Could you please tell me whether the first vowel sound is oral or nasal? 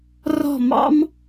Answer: oral